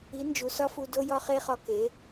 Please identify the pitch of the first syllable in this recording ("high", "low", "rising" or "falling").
rising